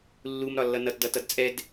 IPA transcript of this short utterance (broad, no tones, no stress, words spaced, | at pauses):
lːumɾɒ lːʌnʌtdʌ tʌdt͡sʼɛd